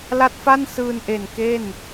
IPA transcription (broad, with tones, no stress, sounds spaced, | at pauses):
l a˦˥ t̚ f a˥˩ n s ɯː˧ n ʔ e˨˩ n k e˥˩ n